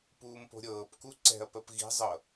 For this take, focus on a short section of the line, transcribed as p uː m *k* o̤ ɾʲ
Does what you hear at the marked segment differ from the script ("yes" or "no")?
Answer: yes